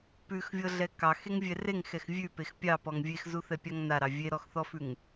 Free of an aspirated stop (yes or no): yes